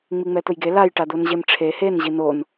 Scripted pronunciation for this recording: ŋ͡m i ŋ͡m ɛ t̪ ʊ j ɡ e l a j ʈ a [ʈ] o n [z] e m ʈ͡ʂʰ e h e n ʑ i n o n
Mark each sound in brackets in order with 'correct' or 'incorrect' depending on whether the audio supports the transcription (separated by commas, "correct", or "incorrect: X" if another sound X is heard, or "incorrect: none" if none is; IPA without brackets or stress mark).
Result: incorrect: d̪, incorrect: ʑ